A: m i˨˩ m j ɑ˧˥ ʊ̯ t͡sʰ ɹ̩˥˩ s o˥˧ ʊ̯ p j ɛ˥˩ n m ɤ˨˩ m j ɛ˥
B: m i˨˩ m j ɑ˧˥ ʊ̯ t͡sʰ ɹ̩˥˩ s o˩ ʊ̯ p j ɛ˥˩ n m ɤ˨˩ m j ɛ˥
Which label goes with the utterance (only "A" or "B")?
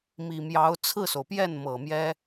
B